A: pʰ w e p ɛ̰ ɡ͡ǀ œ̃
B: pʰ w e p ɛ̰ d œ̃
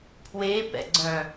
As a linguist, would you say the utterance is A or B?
A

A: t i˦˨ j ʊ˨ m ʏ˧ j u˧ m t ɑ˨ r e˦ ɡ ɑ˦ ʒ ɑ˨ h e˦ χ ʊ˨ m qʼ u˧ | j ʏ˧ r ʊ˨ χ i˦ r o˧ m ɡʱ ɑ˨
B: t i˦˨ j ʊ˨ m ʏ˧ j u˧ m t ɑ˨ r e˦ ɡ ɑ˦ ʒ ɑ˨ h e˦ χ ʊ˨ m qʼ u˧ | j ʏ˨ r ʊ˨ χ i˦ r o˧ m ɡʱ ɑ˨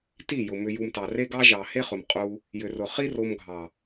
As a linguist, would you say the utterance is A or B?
B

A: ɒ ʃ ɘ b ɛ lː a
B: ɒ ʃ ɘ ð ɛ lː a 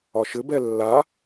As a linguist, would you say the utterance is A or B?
A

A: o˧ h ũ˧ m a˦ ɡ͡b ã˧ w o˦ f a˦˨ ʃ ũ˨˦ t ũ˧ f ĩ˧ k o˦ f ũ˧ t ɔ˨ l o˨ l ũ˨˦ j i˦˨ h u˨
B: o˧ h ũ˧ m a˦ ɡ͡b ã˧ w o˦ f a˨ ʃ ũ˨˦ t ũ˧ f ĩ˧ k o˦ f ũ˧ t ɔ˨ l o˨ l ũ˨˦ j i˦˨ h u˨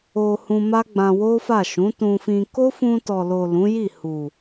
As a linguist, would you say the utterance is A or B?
A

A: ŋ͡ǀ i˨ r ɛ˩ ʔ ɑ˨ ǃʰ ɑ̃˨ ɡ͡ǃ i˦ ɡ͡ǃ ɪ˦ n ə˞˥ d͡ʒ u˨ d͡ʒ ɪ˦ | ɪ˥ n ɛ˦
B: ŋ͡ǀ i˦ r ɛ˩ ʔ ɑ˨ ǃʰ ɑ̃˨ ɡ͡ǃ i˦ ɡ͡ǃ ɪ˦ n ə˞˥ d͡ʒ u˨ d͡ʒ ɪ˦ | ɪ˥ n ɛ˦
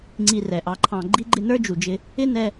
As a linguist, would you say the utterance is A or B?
A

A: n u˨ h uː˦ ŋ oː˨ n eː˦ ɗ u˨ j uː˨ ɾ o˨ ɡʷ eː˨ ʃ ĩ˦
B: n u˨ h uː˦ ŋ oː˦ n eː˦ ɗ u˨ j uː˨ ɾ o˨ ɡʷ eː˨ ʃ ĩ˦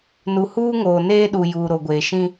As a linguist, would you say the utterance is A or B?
A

